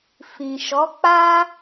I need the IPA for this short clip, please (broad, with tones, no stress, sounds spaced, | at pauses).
f ĩ˨ ʃ ɔ˨˦ k͡p a˦